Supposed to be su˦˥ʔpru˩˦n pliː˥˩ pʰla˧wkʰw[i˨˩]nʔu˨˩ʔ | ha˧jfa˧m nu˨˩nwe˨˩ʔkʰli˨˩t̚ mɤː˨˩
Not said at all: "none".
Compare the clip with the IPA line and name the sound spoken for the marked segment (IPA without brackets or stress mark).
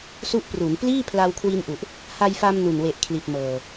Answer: i˧